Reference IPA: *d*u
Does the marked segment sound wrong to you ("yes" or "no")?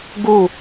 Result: yes